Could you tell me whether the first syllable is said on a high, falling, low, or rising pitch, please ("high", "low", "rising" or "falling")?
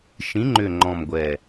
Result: rising